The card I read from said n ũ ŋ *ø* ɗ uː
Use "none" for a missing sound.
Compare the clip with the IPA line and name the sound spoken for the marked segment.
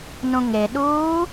e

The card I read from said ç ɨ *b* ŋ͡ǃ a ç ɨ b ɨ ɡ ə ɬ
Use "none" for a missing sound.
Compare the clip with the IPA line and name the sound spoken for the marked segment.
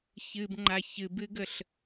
b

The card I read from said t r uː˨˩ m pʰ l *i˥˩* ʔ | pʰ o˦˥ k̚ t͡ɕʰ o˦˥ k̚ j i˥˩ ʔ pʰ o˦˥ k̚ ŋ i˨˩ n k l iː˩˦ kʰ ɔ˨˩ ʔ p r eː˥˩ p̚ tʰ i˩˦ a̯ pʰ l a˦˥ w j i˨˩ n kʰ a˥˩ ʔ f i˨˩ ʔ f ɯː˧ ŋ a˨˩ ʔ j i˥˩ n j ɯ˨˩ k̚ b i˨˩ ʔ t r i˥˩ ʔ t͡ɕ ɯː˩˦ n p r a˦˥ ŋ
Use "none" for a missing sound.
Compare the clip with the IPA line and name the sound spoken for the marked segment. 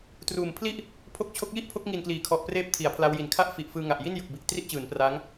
i˥˩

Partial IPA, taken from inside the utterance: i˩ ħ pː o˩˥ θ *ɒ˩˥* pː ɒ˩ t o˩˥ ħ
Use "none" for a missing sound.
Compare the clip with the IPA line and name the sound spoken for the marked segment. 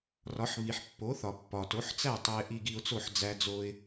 ɒ˩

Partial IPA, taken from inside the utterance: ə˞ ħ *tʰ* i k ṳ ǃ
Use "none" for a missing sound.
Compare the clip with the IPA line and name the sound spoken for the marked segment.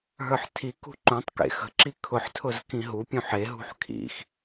tʰ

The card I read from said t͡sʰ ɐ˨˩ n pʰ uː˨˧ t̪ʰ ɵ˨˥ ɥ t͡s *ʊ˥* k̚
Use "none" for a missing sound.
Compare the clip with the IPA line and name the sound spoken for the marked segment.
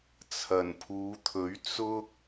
ʊ˥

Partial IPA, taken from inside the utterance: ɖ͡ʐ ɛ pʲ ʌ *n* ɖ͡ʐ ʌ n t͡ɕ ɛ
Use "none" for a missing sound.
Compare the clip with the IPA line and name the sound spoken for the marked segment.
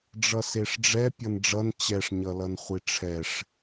n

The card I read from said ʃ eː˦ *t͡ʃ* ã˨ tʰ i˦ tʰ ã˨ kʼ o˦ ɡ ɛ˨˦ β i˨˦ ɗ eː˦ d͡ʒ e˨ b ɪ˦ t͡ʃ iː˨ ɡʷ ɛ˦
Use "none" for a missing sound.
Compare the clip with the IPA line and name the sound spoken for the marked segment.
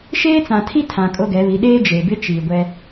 t͡s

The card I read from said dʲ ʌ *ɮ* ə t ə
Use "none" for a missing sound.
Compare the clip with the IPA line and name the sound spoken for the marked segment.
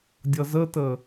z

